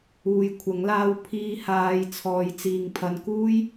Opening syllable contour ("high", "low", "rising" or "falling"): low